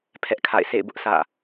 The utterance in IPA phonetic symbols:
pʰɛ˦ʔkʰa̰˦˨ɪ̯ sḛ˦˨ɪ̯bʊ˦ʔ sʰä̰˦˨

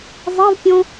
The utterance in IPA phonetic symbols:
zˤevpʲɔ̃

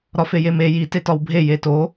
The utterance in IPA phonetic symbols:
ɾɒfejeme ji tetɒwbʱe jeto

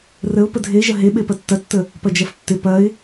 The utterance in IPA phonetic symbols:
rəʊ̯ pədʱeʒɐ ɦeɓe pɐtːɐtːə | pɐd͡ʒɐftːɪ pɐɪ̯

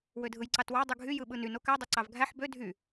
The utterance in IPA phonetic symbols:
wødʱɯjǀɑtwɑ dˤɯɡʱy jɯɓɯnyn okæ dˤoǀɑvɡʱæħ bø dʱy

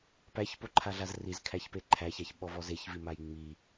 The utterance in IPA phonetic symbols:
pæçpoǃʰaɮaz rizkʰæçpe ǃʰæçaçɓɔvɔz eçvimaj ŋ͡mi

